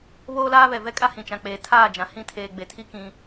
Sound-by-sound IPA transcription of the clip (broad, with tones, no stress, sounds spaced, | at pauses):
β oː˦ l aː˦ β ɛ˨ v ɛ˦ kʼ a˦ h ĩ˨ t͡ʃ ã˨ k͡p eː˨ tʰ aː˦˨ d͡ʒ ã˨ h ĩ˦˨ tʰ eː˨ ɡ͡b e˨ tʰ i˦ k ĩ˦